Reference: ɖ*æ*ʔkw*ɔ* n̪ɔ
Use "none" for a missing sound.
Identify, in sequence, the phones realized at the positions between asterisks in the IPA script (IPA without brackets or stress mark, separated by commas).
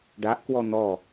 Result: a, ɔ